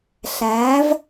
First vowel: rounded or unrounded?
unrounded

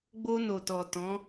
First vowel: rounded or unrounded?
rounded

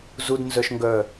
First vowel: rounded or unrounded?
rounded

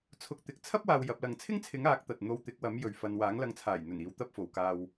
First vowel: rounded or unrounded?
rounded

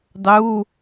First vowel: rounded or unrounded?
rounded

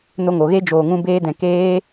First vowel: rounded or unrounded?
rounded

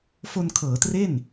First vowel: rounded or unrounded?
rounded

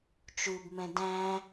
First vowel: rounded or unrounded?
rounded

